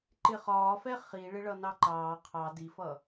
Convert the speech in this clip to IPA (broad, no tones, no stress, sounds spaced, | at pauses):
ǃ ɪ χ ɒː f ɛ χ i ɭ ɪ ɭ ʌ n ɑ ǃ ɑː qʰ ɑ d i f ʌ